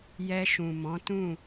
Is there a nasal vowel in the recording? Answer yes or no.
yes